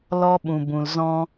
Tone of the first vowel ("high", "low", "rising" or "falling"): high